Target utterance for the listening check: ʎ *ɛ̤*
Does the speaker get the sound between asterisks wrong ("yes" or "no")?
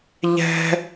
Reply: no